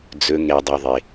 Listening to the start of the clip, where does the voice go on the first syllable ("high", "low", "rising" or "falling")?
low